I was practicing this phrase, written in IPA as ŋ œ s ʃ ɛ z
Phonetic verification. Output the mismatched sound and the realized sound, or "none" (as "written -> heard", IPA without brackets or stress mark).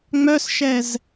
ŋ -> ŋ͡m